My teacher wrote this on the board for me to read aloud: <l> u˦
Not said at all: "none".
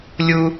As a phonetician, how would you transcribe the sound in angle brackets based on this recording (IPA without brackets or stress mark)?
lʲ